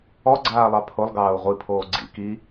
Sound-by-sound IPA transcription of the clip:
ɔ ɡ͡ǀ aː lˠ ɑ pʰ o lˠ ɡ ɑː u̯ ʁʷ i pʰ oː ɡ͡ǀ ḭ k i

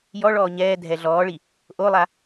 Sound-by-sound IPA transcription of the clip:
j ɔ ɭ ɔː ɲ ɛː dʱ ɛ ɮ ɔː ɭ i | ʔ o lˠ a

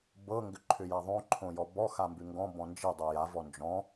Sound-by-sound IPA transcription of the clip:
b ɤ ŋ ɡ ʏ ǃʰ ʏ j a ðˤ õ ǃʰ õ j ɔ b ɔ x a m b ʉ ŋ ɡ ɔ̃ b ɔ̃ n d͡ʒ i dˤ i j a v ɔ n d͡ʒ ɔ̃

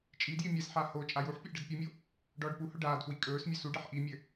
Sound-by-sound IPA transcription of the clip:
t͡ʃʼ i d j i mʲ ɛ s ħ a h o t͡ʃʼ a j u ħ pʲ ɘ ʔ ɖ ɘ d pʲ u mʲ o | ɖ ɔː ɖ p u h ɵ ɖ aː d f w i kʼ ɵː s mʲ ɵ s u ɖ ɛ ħ ʔ i mʲ ɘ

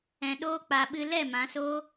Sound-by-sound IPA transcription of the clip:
ɛ̃˧ ɗ oː˦ k͡p a˧ ɓ ɨ˧ l ɛ˦˨ m ã˨˦ s oː˦

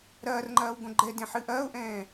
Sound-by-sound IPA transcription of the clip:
ɾ ɐː r ŋ͡ǃ ɐː w ɡ õ ɡ͡ǃ ɛ d ẽ ħ ɨ ʔ ɐː ʊ̯ ʔ ɛ̃ː

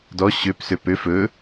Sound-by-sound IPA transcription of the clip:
d ɔ ɕ ø p s ø p ø f ɵ

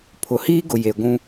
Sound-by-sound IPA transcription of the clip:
pʰ ʊ˨ h iː˦ ɡ ʊ˨ j e˨ ɡʷ ũ˦

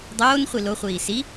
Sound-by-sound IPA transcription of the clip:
dˤ oː n χʷ i l o χʷ iː s i

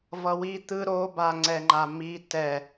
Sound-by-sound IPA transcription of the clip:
v ʌ w i t̪ ɯ ɾ o b a ŋ͡ǀ ɛ ŋ͡ǃ a m i t ɛ

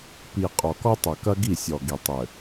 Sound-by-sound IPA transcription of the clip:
p i˨ qʼ ɔ˨ k ɔ˦ tˤ ɐ˨ k ɐ˦ ɡ i˦˨ sʲ ɔ˨ ɡ i˨ tˤ ɘ˨

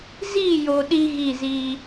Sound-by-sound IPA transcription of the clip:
z i˦˨ j o˨ ɗ i˦ ɣ i˦˨ z i˦

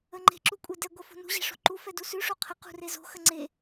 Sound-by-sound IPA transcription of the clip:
ə ŋ͡ǃ e̤ ǁ u kʷʼ e d ɛ ɡʷ ə f o̤ n ṳ ʑ ɛ̤ ʂ o̤ ǃ u f ɛ d u s ʉ ʂ o qʰ ə q ṳ r e z o̤ x ə ŋ͡ǀ e

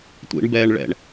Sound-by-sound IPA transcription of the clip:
tʷ ḭ ɳ b ɛː ɳ ɭ ɛ̰ ɳ

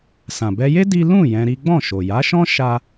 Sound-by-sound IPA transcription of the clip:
s ã˨ b ɛ˧ j e˦ d i˦ l ũ˦˨ j ɛ̃˧ ɾ i˦ ɡ͡b ɔ̃˦˨ ʃ o˨ j a˨˦ ʃ ɔ̃˦ ʃ a˦

